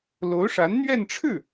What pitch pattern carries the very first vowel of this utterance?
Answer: rising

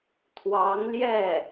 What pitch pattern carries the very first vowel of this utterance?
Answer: rising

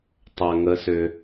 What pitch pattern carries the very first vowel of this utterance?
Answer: low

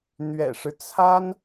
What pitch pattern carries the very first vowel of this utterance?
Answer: low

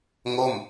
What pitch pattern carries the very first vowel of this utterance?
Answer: falling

